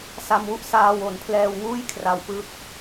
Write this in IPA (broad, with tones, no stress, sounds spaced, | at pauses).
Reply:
s a˧ m w u˥˩ ʔ s aː˧ w o˩˦ n pʰ l ɛː˧ w ŋ uː˥˩ j kʰ r a˧ w p ɯ˦˥ k̚